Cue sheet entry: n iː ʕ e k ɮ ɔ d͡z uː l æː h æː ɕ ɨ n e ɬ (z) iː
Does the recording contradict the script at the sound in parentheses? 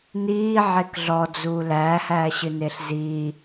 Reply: no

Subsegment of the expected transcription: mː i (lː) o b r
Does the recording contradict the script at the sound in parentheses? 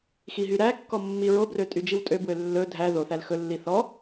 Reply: yes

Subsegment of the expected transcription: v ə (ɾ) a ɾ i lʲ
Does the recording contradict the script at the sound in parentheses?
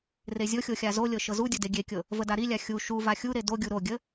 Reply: yes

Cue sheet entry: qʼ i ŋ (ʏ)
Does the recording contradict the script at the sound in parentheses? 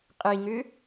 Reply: no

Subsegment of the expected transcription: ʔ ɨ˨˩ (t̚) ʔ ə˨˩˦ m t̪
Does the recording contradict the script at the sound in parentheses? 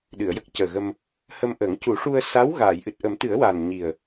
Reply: no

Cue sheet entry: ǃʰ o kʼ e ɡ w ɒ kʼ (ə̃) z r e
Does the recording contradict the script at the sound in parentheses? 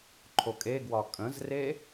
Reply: no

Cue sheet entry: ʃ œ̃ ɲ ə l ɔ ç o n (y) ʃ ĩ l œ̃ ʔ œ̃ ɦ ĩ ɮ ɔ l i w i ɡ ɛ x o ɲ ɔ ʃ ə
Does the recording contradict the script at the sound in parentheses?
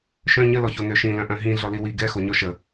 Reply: yes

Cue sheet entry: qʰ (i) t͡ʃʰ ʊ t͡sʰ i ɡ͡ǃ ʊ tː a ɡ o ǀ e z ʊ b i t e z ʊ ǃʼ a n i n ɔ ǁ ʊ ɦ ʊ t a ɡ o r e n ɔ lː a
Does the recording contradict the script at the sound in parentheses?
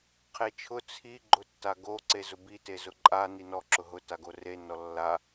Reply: yes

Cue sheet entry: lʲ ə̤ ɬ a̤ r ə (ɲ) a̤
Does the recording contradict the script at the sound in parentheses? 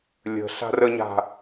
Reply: no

